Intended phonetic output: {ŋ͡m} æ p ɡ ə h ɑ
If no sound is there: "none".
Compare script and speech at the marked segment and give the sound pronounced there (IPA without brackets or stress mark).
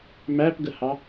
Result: m